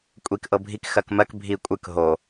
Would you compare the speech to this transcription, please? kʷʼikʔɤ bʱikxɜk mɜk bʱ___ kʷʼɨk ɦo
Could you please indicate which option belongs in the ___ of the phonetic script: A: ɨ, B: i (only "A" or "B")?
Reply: B